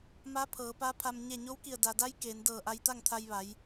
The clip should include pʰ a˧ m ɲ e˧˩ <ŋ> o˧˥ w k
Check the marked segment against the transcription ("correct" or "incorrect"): incorrect